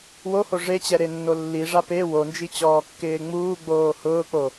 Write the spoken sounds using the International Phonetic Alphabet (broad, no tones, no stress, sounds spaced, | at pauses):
w o h o ʐ e t͡ɕ ɛ ɾ e nː o lː i ʐ a p e w o n d͡ʒ i t͡ɕ ɔː kː ɪː ŋ͡m uː ɡ͡b oː h ʊː k͡p o